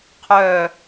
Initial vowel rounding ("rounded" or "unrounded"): rounded